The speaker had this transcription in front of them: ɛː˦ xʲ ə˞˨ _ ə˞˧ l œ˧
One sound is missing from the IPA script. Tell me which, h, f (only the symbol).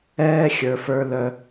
f